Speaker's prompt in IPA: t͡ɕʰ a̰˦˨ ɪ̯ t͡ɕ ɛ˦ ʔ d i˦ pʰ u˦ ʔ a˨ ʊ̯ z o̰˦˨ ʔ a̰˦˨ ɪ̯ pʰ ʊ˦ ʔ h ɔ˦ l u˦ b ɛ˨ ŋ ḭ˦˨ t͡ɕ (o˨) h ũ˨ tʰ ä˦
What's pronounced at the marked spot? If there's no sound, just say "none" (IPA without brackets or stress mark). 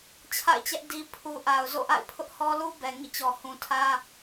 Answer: ɔ˨